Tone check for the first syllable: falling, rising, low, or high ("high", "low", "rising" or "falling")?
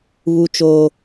high